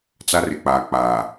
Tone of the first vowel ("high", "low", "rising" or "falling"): high